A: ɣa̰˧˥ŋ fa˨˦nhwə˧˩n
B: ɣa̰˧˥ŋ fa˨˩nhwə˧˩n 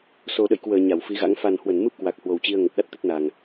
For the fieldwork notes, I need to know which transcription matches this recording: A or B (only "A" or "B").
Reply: B